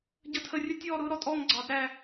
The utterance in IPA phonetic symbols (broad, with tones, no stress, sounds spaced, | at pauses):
ɟ ə˥˨ tʰ ə˥˨ rʲ ə˥ tʲ ɔː˥˨ ɾ ʊː˥ ɾ ɔ˥ tʼ ɔː˥˨ ŋ ɡ͡ǀ ɑ˨˩˦ d ɾ æ˥˨